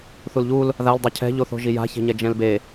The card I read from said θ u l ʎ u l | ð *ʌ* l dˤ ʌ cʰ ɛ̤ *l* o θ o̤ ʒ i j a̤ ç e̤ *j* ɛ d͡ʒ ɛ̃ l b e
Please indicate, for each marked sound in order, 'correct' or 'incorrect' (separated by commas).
incorrect, incorrect, incorrect